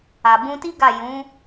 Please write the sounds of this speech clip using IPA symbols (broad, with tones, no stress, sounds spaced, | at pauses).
a˨ b ũ˧ t i˦ ɡ a˦˨ j ũ˨˦